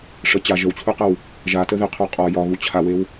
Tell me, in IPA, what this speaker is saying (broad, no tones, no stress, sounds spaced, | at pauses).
ʂ ə t͡ɕ a ʒ ə w t͡ɕʰ u q ə w | ʒ a t ə ð ɪ qʰ o qʼ ɒ j ɒ ɣ u t͡ɕʰ a w e w